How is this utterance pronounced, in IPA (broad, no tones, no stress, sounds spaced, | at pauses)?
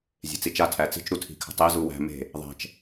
zʲ e̤ t͡s i t͡ʃ a tʰ æ t͡s i̤ t͡ʃ ɾ u tʰ i̤ kʰ ə̤ tˤ e z u w æ̤ m e̤ | ðˤ æ̤ t͡ʃ